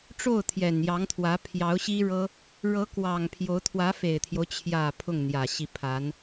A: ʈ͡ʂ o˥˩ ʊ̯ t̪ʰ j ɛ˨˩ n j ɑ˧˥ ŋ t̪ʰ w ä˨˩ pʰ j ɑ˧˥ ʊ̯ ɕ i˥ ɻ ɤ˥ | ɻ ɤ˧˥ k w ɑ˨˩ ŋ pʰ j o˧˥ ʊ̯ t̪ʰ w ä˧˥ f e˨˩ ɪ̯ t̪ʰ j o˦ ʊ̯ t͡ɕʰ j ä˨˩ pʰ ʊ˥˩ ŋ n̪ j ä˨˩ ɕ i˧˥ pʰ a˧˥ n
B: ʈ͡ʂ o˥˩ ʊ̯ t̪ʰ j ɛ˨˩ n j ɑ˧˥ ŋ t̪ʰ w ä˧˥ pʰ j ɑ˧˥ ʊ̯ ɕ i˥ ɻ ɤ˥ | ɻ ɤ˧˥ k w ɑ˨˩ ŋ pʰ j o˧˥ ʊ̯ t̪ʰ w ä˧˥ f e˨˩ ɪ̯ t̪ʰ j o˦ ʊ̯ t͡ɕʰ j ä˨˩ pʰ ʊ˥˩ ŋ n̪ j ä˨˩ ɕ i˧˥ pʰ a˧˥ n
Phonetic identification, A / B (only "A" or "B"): B